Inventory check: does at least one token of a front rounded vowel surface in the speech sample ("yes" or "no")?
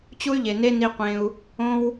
yes